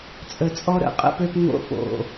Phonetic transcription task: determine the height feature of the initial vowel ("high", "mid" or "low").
mid